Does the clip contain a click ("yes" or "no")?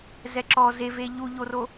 yes